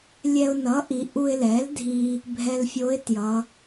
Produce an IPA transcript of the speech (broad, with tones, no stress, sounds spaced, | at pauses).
lʲ ɛ˧ ʊ̯ n ʌ˩˥ ʔ i˩˧ ʔ u˧ ɪ̯ l ɛ˩˥ l dʱ i˧ | bʱ ɛ˧ l fʲ o˧˥ ɪ̯ t j ʌ˩˧